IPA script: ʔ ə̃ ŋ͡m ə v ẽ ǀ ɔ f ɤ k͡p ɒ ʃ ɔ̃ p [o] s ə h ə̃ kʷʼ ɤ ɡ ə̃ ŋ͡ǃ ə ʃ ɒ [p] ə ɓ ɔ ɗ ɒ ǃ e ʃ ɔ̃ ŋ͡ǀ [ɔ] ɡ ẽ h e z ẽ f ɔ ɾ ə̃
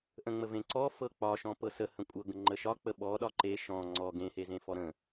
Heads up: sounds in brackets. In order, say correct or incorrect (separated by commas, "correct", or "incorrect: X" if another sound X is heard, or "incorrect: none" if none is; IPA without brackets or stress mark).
incorrect: ɤ, incorrect: k͡p, correct